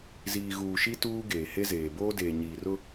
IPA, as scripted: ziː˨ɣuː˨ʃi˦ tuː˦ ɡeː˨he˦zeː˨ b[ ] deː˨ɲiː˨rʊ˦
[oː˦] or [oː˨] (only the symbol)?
oː˦